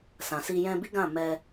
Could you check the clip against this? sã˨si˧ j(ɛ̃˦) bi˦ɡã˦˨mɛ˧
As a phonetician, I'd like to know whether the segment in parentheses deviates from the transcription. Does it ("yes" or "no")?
yes